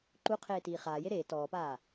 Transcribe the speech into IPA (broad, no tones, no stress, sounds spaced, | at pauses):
ǃ u qʰ eː t iː χ aː j e ɾ eː t ɔː p aː